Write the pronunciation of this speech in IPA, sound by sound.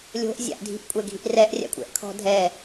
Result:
lʲ o̤ ʔ zʲ a̰ ʔ dʱ i̤ ʔ kʷʼ ɛ ɡʱ i ʔ r ɛ ʔ rʲ a̰ kʷʼ ɛ̰ ʔ kʰ ɔ̤ dʱ ɛ

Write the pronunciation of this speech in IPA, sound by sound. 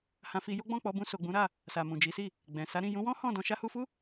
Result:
h ã˧ f i˧ j o˦ ɡ͡b ɔ̃˦˨ k͡p ɔ˨˦ b ũ˧ s o˨ ɡ͡b ũ˨˦ ɾ a˦˨ | s a˨ m ũ˨ d͡ʒ i˨˦ s i˦˨ | ɡ͡b ɛ̃˨ s a˨˦ ɾ ĩ˦˨ j ũ˨˦ w ɔ̃˦ h ɔ̃˦˨ d ɔ̃˧ ʃ a˧ h u˧ f u˦

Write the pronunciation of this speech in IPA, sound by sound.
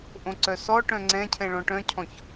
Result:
ʔ õ ǀ œ s ɔ ʈ œ̃ ŋ͡ǀ ɛ̃ cʰ ɛ̃ ɭ ɔ̃ ʈ œ̃ cʰ ɔ̃ ç

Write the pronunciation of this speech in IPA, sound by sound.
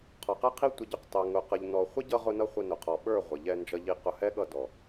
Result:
qʰ ɔ˨ q ɛ˦ qʰ i˦ tʷ ɪ˧ ɟ ʊ˧ q t ɑ˨ ŋ ʊ˨ q ə˨ ʎ n ɔ˨ χʷ ɪ˦ ɟ ʌ˧ ʁ ʊ˧ n ʌ˧ χʷ ə˧ n ʊ˨ qʰ ɔ˨ ɓ ə˞˦˨ ʁʷ ɪ˨ ʎ ɛ˧ n d͡ʒ ʌ˧ ʎ i˧ q ʊ˧ h ɛ˦ ɠ ʌ˧ d ɔ˨

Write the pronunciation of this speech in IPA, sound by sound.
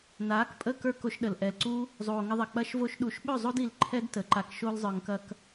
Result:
n aː˨˦ k pʼ ə˦˨ k ə˞˦ k o˧ ʃ ɗ ə˨ l ʔ ɛ˨ l ǀ u˦ | zˤ oː˨ ŋ ə˧ ðˤ ɐ˨ k͡p ɐ˧ ʃ v o˧ ʃ ɗ u˨ ʃ ɓ ɵ˦˨ zˤ o˦ d i˧ l ǃʰ ɛ˦ d t ə˨ ǃ a˧ k ʃ o˦ l zˤ ə˞˧ ŋ k ɐ˦ k

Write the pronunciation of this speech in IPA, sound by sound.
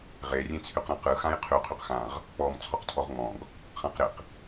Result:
ʁ e rʲ ẽ t͡sʰ y q ɾ ã q ɯ x ã j qʰ y qʰ y q x ã ʁ | k͡p ɔ m t͡sʰ ɔ q tʰ ɔ ʁ ŋ͡m ɔ̃ ɡ | χ ã q ɾ ɪ q

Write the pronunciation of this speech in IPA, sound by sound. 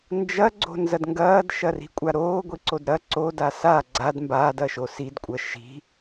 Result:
n d͡ʒ ɐ ɡ͡ǀ o̤ n z ɐ d ŋ ɡ ɐː d ʃ ɐ r i̤ kʷʼ a ɾ oː ɡʷ i ǀ o d ɾ ɐ ǀ o d a s a ɡ͡ǀ a d m b aː d ɐ ʃ o s i d kʷʼ ɐ ʃ i̤

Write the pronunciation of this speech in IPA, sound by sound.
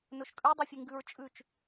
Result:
n ɵ ʃ kʼ ʉ dˤ ʉ fʲ e ŋ ɡ ʉ ɹ t͡ʃʼ ʉ t͡ʃ

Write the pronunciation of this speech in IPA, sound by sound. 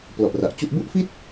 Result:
p l ɔ˨˩ ʔ r a˨˩ ʔ t͡ɕ u˥˩ ʔ b u˥˩ ʔ f i˥˩ t̚

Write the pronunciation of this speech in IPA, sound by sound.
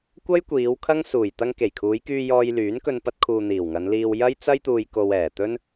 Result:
kʷ ɐ˥ j kʷ iː˨˧ w kʰ ɐ˥ ŋ s uː˨˩ j t̪ ɐ˧ ŋ k e˨˩ j kʰ uː˨˧ j k yː˧ j ɔː˧ j l yː˨˥ n k ɵ˧ n p ɐ˧ t̚ kʰ uː˨ n̪ iː˨˩ w ŋ ɐ˨˧ n l iː˧ w j ɐ˥ j t͡s ɐ˥ j t̪ uː˧ j k o˧ w ɛː˨˩ t̪ ɵ˥ n

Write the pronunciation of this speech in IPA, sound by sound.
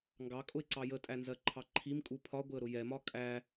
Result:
ŋ ɡ ɑ kʼ ʊ ɪ̯ ǀ ɑ j ə tʼ æ n z ɜ ǃʰ ɑ ǃʰ i m kʼ u pʰ ɒ ɡʷ ɪ ə̯ ɾ ʊ j ɛ m ɒ kʼ æ

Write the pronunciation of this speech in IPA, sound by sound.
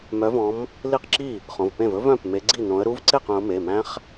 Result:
m œ˨˦ v ɔ̃˨˦ m | l i˥˩ q ǁ i˥˩ | χ õ˩˧˩ v p ẽ˥˩ v ɵ˦˥ v œ̃˩˧˩ p m e˨˦ ɡ͡ǀ i˥˩ n õ˨˦ ə̯ ɾ u˦˥ v ǀ e˥˩ q œ̃˨˦ ʊ̯ m e˩˧˩ m æ̃˦˥ χ

